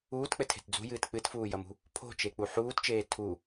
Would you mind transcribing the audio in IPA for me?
uː t k͡p ɘ tʰ e̤ t d͡z ṳ j ɨː t k͡p ɨ t f uː j ɐ m ṳ | pʰ o̤ t͡ʃ e k͡p u ħ uː t t͡ʃ eː tʰ u

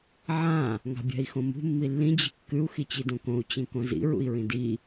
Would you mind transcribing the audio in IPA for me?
ʕ ã | ŋ a̤ bʲ a̤ i̯ x õ m ṳ mː i lː ĩ d͡ʑ i̤ kː ʉ u̯ x i t͡ɕ i d õ k õ u̯ t͡ɕ ĩ k õ z ḭ ɹ ṵ i̯ ɹ ĩ d i

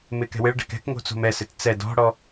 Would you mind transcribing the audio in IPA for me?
m ɪː k ɛ̤ w ɪ ɭ ɖ ɛ̤ k ɛ̤ k ŋ o̤ t͡s o̤ m ɛ s ɪ t t͡s ɛ d ɔ̤ ɽ ɔ

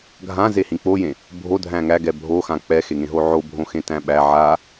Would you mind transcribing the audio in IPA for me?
ɡʱ ã z e h ĩ k͡p o j ẽ | bʱ o dʱ æ̃ ŋ æ ɡ ɛ bʱ o x ã k͡p ɛ x e ŋ ẽ ɦ o ʕ o bʱ õ x ẽ t æ̃ ɓ æ ʕ a

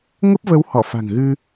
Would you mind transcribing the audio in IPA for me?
ŋ ə˦˥ p̚ v ə˨˦ w h ɔ˧˩ f a̤˨˩ ŋ ɣ ɨ˧

